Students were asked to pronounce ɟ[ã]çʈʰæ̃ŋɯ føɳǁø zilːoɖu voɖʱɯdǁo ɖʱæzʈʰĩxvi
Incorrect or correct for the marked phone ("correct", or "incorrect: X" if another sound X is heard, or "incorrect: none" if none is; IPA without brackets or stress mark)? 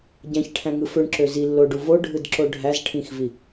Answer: incorrect: æ̃